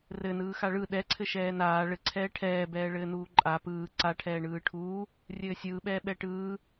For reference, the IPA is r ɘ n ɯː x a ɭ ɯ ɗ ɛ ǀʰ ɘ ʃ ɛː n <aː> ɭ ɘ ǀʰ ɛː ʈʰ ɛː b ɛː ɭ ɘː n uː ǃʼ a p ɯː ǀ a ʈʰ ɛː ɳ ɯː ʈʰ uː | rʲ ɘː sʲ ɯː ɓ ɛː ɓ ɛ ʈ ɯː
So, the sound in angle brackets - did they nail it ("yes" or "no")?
yes